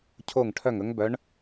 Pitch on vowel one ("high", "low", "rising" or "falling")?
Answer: falling